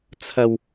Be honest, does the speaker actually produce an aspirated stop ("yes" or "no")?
yes